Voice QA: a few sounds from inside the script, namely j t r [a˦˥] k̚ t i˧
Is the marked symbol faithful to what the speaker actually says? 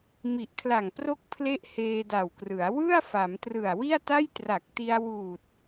no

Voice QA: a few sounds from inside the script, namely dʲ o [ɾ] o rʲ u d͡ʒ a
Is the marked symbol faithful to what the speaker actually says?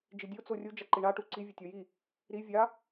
no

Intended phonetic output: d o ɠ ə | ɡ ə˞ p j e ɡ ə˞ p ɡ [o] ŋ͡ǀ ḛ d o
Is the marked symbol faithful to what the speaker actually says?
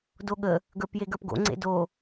no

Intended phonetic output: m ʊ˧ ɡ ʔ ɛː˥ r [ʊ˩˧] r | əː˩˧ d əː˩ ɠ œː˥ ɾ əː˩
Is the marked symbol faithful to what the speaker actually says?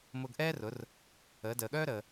yes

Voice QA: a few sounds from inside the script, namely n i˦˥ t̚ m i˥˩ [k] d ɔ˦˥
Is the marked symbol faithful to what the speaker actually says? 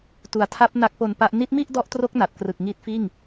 no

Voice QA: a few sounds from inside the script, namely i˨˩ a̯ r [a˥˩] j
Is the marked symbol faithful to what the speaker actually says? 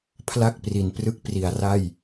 yes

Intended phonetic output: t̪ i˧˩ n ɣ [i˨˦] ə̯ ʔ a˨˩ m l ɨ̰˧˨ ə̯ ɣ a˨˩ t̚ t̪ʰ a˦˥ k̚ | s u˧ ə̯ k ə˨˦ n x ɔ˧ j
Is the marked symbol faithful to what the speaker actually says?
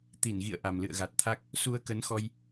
no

